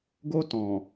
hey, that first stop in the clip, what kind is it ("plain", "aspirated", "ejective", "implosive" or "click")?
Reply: plain